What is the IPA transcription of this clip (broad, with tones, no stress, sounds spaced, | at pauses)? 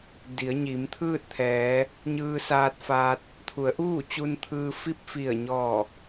d i˩˧ ə̯ ɲ i˩˧ m t̪ʰ ɯː˥˨ t̚ t̪ʰ ɛː˩˧ | ɲ ɯː˧ s aː˧ t̚ f aː˧ t̚ | t̪ʰ u˩˧ ə̯ ʔ uː˥˨ t͡ɕ u˧ n t̪ʰ ɯː˧ f i˥˨ p̚ f i˧˩ ə̯ ɲ ɔː˧˩